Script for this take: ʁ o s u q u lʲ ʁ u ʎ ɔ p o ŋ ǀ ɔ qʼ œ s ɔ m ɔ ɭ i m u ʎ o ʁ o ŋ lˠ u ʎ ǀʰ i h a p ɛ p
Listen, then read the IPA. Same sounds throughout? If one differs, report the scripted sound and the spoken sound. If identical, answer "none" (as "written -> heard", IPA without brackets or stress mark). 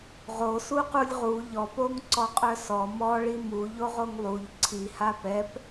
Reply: none